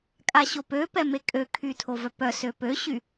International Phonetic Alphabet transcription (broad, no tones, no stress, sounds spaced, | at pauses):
kʼ a ɕ o p ø p ɛ m e kʼ ø kʰ y tʰ o v œ p œ s ø p ø ɕ y